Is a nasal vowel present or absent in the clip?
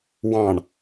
present